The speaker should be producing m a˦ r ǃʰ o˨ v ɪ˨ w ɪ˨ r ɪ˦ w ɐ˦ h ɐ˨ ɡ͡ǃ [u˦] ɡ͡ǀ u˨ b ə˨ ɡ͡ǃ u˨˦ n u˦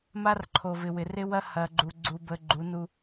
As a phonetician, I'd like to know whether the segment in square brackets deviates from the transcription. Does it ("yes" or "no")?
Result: yes